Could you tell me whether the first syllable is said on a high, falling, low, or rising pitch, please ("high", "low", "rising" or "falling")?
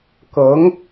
rising